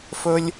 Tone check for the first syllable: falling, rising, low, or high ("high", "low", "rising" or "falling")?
high